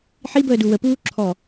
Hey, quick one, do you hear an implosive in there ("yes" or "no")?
no